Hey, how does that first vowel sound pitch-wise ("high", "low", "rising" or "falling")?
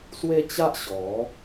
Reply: high